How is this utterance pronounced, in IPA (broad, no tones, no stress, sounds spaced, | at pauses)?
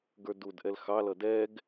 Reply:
ɡ ə˞ d u d ʔ ɛ l x ɑ l ʌ d ɛ ɡ